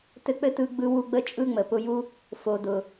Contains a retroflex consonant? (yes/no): no